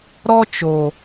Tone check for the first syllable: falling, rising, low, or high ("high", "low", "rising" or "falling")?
high